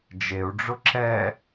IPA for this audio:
d͡ʒ e u̯ ɖ͡ʐ ʊ ǁ ɛ

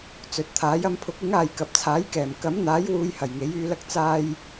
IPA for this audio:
t͡s ɵ˨ t̚ t̪ʰ aː˨˥ j ɐ˧ m pʰ ʊ˨˥ k̚ ɪ˨˥ ŋ aː˨ j k ɐ˨ p̚ t͡sʰ aː˨˥ j k ɛː˨˩ m k ɐ˨˥ m n̪ aː˨˥ j w uː˨˧ j h ɐ˨˩ j ŋ e˨˥ j yː˧ l ɐ˥ k̚ t͡s aː˧ j

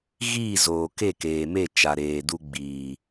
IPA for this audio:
ɣ iː˦˨ z oː˨ k e˦˨ k eː˨ m e˦˨ t͡ʃ a˨ ɾ eː˨ d u˧ ɡ͡b iː˨

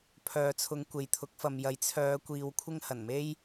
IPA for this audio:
pʰ œː˨ t͡sʰ ʊ˨˧ ŋ kʷ e˨ j t̪ʰ ʊ˨˥ k̚ f ɐ˨ m j ɐ˨˥ j t͡sʰ œː˨˧ kʷ iː˨ w kʷʰ ɪ˥ ŋ h ɐ˨˩ n m e˥ j

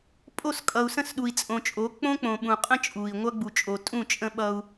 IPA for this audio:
pʼ o˦˨ s kʼ ʌ˨ u̯ s ə̃˦˨ s ɗ u˨ i̯ t͡sʼ õ˨ t͡ʃʼ o˨˦ k͡p õ˦ k͡p õ˨ ɓ ũ˨ qʼ ə̃˦ t͡ʃʼ u˨ i̯ ŋʷ ʌ˦ ɡ͡b u˨ t͡ʃʼ o˨ tʼ ũ˦˨ t͡ʃʼ ə̃˦ ɓ ʌ˦ u̯

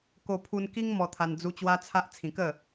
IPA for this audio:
k o˧ pʰ u˧ n k i˦ ŋ m ɔ˧ t̪ʰ a˧ n d͡z u˧ t͡ɕ w a˦ t͡sʰ a˦ ʔ t͡sʰ ĩ˧ k ə˥˧

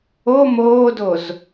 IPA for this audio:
o m oː d o z

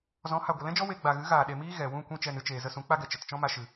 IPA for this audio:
z ɔ̃˨˦ h a˨ ɡʷ ə˨ l ɛ̃˦ d͡ʒ ɔ˦ w e˧ ɡ͡b a˨ ɣ ɨ˨˦ ɣ aː˨ ɗ e˨ m iː˦ ɣ ɛ˨ w ũ˦˨ kʷ ĩ˦ t͡ʃ ɛ˧ n ɨ˧ t͡ʃ eː˨ z ə˧ s ũ˨˦ k͡p a˦ ɡ ɛ˨ t͡ʃ ə˨ t t͡ʃ ɔ̃˦ m a˧ ʃ ɨ˨

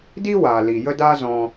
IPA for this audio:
d i˦ w aː˨ l i˨ j ə˦ d aː˦ z ɔ̃˧

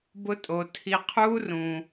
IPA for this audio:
b ʊ˦ tʼ o˧ tʰ i˧ qʰ uː˦ r ũ˧

